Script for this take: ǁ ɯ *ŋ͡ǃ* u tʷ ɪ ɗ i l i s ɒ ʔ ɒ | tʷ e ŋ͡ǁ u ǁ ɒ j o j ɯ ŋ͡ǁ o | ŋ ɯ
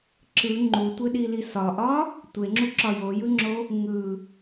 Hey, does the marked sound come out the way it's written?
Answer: yes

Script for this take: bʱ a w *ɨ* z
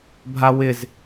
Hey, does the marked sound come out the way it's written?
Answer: no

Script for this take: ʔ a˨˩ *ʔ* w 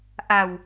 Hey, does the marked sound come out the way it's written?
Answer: no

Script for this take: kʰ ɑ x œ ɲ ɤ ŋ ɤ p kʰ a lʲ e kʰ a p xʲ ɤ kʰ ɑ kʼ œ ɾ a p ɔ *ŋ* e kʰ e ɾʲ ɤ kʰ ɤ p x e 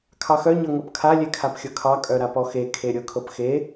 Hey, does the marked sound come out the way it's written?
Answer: no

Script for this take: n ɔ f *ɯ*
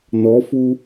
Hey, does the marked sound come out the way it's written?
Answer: no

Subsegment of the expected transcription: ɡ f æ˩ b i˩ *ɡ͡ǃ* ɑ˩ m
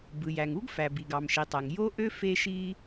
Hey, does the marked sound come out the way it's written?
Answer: no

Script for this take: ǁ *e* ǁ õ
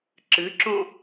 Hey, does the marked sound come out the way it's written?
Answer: no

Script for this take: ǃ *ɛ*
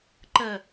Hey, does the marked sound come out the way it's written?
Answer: no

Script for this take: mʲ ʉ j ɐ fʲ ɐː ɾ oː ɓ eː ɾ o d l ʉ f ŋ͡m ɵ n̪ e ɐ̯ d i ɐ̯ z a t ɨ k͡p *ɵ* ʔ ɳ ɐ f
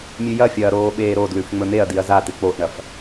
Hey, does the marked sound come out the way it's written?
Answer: no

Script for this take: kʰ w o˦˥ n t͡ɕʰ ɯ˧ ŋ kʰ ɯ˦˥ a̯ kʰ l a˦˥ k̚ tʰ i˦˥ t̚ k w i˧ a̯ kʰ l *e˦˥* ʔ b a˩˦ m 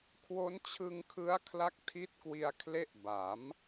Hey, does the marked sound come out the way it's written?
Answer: yes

